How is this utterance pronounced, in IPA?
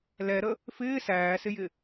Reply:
lɛɾə | fɪː sæːsɪjɪ

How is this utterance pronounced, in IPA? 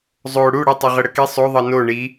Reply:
zˤo ɽu ɽʌtˤuʁə ɽəki sˤo ðˤʌno ɳi

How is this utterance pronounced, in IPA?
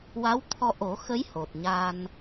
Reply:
wa˧˥wt̪ʰɔ˧ʔo˨˩˦xə˧˥j ho˨˩t̚ɲa˧n

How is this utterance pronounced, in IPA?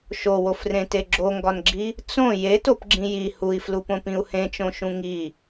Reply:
ʃowofrẽte ɡ͡ǁoŋɡɒnɡ͡ǁi | t͡sõ jetopɡ͡ǁĩ ji hui̯flupõpĩu̯ hẽt͡ʃõʃũ ŋi

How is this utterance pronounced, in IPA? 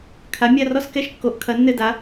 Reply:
kʰa˨˥ mʲa˥˧rɔ˥˧skɛ˥˧ʃ kːo˨˥ʔ kʰɐ˨˥nːɘ˥˧da˨˥

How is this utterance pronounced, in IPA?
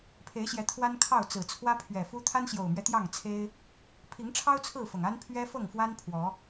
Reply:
pʰe˨˦ɪ̯ɕjɛ˨˦ t̪ʰwa˦nkʰɑ˥˨ʊ̯ t͡sɹ̩˨˩t͡sʰwä˦pʰɥɛ˨˩fu˦ t̪ʰa˦nɕjo˨˩ʊ̯mɥɛ˦ t̪jɑ˥˨ŋt͡sʰe˦ɪ̯ | pʰi˨˦ŋʈ͡ʂʰɑ˦ʊ̯ t͡sʰɹ̩˥˨fɤ˩ŋ a˦npʰɥɛ˦fɤ˥˨ŋfwa˦n pʰwɔ˨˦

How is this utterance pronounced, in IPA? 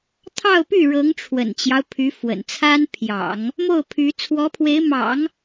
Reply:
t̪ʰɑ˥˧ʊ̯py˥˩ ɻɤ˧˥ŋʈ͡ʂʰwə̰˨˩nt͡ɕjɑ˦ʊ̯ pʰy˧˥fwə̰˨˩nt͡sʰa˥n pʰjɑ̰˨˩˦ŋ | mo˥˩ʊ̯pʰy˧˥ t͡sʰwɔ˧˥pʰwe˧˥ɪ̯mɑ̰˨˩˦ŋ

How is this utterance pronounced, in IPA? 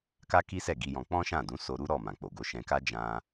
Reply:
ka˦ki˦sɛ˦˨ ɡi˧jɔ̃˧ k͡pɔ̃˦ʃã˦˨ dũ˨˦ so˧ɾu˦ɾɔ˦˨mã˨ k͡po˨ɡo˨˦ʃɛ̃˧ka˦ d͡ʒã˧

